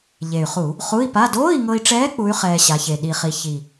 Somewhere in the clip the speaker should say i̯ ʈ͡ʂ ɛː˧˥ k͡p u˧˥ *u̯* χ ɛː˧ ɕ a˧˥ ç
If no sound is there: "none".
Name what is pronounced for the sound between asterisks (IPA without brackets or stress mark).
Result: y̯